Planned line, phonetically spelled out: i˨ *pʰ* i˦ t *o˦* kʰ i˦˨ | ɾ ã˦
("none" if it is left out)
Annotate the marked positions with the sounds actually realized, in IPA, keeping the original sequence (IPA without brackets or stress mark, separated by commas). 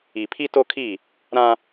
pʰ, o˦